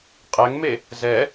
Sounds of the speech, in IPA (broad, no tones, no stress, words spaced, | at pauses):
qʼɛŋme | zɛ